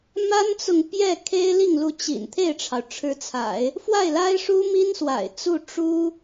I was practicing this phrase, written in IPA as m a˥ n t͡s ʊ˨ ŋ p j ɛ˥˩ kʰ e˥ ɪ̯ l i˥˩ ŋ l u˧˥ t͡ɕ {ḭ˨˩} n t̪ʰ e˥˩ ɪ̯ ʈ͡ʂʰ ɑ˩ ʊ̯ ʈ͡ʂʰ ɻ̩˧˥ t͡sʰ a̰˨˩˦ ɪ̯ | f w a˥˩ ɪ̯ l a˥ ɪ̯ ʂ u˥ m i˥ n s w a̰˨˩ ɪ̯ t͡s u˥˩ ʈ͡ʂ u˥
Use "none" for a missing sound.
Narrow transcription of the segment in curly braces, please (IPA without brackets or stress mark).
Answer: ḭ˨˩